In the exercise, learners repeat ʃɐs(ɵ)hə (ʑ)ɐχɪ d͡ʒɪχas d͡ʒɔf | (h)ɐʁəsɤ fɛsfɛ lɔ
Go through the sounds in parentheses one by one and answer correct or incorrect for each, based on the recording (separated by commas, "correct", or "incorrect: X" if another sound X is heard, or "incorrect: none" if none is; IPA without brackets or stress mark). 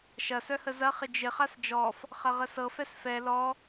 incorrect: œ, incorrect: z, incorrect: χ